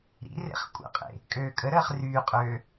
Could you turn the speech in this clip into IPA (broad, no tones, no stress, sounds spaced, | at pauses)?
ɾ ḭ r ḛ χ kʷʼ ə̰ qʼ ḛ | kʼ øː kʼ ə ɾ əː χ r yː qʼ øː